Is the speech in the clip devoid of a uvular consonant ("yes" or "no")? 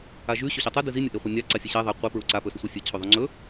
no